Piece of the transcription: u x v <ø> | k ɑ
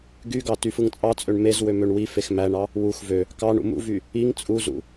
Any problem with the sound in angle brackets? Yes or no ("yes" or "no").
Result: no